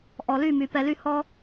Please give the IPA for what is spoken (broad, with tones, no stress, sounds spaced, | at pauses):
ʔ ɔ˨ l y˦˨ m y˨ p ɛ˧ l y˦ h ɔ˦